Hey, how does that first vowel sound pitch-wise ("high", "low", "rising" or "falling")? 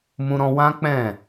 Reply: high